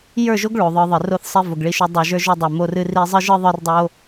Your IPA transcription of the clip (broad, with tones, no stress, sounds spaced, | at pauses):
j ə˞˦˨ ʒ o˦ ɡ ɭ o˨ ðˤ ə˞˧ ðˤ ɨ˨ r o˦ θ sˤ i˧ v o˨ ɡ ɭ i˧ ʃ o˧ dˤ o˨ ʒ ə˞˧ ʒ o˧ dˤ ə˞˨ m o˧ r ɨ˦ r i˦ zˤ ɨ˦ ʒ ɨ˦ ðˤ ə˞˦ r dˤ o˦